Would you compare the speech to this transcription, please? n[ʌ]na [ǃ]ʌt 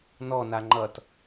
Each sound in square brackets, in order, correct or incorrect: incorrect: ɔ, incorrect: ŋ͡ǃ

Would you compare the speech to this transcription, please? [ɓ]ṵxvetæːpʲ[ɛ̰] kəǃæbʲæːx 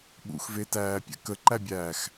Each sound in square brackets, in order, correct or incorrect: correct, correct

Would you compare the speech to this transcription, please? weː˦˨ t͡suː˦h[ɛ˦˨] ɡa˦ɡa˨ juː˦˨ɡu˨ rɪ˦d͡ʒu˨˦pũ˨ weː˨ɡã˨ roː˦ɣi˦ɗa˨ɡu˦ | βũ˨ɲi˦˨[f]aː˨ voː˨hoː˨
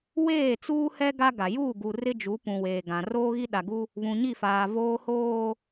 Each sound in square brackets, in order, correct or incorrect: incorrect: ɛ˦, correct

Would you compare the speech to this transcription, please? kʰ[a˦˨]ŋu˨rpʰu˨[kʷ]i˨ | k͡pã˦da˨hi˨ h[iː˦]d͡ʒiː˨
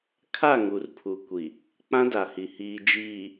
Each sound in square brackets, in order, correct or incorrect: correct, correct, incorrect: iː˨

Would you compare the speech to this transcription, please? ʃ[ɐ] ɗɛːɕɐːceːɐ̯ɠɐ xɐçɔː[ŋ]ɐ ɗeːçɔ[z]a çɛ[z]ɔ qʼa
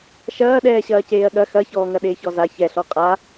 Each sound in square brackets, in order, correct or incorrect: incorrect: ɐː, correct, correct, incorrect: ɬ

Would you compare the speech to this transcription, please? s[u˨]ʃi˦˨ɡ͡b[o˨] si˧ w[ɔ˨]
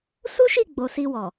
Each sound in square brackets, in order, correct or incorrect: incorrect: u˦, correct, correct

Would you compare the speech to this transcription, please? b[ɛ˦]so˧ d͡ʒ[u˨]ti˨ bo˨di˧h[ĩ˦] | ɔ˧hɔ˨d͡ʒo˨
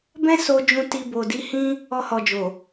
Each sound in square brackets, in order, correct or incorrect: incorrect: ɛ̃˦, incorrect: ũ˨, correct

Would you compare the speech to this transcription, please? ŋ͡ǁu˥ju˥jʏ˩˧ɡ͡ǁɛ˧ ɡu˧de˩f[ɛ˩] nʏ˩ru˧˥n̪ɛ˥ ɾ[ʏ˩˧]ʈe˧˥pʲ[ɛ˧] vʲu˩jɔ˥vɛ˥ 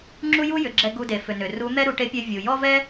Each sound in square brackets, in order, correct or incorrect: incorrect: ʏ˩, incorrect: u˩˧, correct

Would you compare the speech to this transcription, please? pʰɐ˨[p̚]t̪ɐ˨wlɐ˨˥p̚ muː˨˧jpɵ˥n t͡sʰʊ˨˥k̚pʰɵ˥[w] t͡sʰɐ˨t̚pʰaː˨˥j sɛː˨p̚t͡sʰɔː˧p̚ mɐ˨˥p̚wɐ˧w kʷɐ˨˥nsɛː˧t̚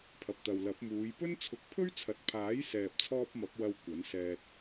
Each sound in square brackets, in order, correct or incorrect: correct, incorrect: ɥ

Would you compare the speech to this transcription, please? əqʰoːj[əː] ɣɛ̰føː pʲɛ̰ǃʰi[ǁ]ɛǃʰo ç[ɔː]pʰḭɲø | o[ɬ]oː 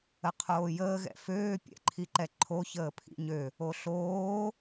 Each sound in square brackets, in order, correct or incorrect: correct, incorrect: ǃ, incorrect: əː, correct

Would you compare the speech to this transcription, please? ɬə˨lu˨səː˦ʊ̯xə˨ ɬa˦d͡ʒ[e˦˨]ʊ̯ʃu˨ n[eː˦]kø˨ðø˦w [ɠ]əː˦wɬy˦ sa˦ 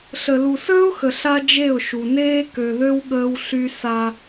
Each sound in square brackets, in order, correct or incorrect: correct, correct, correct

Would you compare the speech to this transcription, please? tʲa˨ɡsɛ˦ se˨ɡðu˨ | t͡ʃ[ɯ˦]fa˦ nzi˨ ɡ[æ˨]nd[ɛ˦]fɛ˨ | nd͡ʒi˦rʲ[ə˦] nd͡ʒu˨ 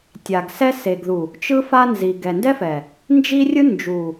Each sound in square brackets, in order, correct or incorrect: correct, incorrect: ɛ˨, correct, incorrect: ɯ˦

